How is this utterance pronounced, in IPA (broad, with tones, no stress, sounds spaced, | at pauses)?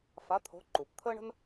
f a˨˦ t̪ʰ o̤˨˦ ǃ u˩ p t̪ʰ əː˥ ɳ ə̤˥ n